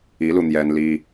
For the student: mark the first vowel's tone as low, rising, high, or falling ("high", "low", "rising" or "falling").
rising